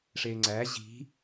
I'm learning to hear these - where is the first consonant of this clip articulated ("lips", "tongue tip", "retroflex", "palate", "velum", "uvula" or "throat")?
retroflex